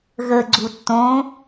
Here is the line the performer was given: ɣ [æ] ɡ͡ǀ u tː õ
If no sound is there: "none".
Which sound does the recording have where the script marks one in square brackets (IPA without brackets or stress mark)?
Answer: ə